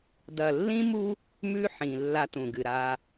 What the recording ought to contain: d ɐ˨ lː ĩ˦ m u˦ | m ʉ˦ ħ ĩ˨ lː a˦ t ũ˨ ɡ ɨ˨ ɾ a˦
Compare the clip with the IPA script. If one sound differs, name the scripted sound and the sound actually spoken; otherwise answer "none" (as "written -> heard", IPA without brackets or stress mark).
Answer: none